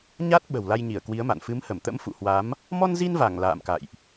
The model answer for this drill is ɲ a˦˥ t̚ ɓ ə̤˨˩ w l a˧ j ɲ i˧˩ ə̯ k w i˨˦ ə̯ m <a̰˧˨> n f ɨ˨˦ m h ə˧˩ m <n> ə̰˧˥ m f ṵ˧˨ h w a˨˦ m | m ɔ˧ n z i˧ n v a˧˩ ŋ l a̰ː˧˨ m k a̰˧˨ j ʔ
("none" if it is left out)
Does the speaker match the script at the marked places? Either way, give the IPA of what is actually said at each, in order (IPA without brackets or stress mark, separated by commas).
a̰˧˨, t̪